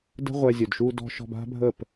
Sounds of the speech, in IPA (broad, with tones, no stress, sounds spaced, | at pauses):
d ə̤˦ ʁʷ ɛ˧ zʲ ɵ˨ d ʃ u˧ d ɔ̤˧ ʃ ɔ̤˧ b a̤˦ bʱ ə˦˨ p